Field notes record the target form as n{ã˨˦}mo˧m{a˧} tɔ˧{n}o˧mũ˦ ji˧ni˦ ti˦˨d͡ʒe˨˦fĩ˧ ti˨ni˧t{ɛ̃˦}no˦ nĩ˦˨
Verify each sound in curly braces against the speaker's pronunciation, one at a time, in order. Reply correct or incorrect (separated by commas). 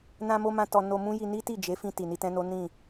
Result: incorrect, incorrect, correct, correct